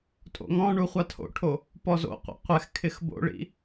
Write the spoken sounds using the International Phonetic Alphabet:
tʼ o̰ ŋ ɔ̃ ɳ u χʷ a tʰ o̰ ʈʰ o | p ɔ z o̰ qʷ ḭ qʷ ɛ x kʰ ɪ x b o̰ ɭ ḭ

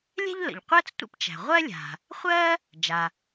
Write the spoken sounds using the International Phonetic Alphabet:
lʲ ɛ̤˥ ʎ l ə̰˩ ʎ qʷ ɜ˥ t͡s tʷ ə̰˥ p t͡ʃ æ̤˩ ʁʷ ɜ˥ lʲ a̤˩ | χʷ ɜ˥ | d͡ʒ a˩

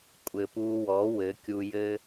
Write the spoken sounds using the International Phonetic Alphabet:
kʷʼ ɘ˨ p u˧ w ɔ˨˦ w ɘ˨˦ kʲ u˧ j ɘ˦

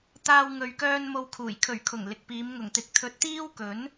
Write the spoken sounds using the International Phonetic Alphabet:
t̪ aː˧ w ŋ ɵ˨ ɥ k œː˧ n m o˧ w kʰ uː˨˩ j kʰ ɵ˨˩ ɥ kʰ ʊ˨˩ ŋ l ɪ˨ k̚ p iː˨˧ m ŋ ʊ˨˩ ŋ t̪ ɪ˨˥ k̚ t̪ʰ ɵ˧ t̚ t̪ iː˥ w k ɵ˨˥ n

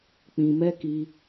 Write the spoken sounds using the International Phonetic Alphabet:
k͡p ĩ˧ m ɛ˦ k i˧

